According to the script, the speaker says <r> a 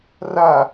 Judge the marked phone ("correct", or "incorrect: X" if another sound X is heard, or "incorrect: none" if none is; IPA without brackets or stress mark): correct